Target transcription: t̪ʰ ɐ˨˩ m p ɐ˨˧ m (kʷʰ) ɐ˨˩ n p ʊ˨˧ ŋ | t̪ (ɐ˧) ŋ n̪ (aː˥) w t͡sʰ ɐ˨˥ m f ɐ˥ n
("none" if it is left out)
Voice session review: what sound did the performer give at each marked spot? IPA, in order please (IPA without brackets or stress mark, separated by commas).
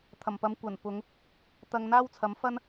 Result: kʷ, ɐ˧, aː˥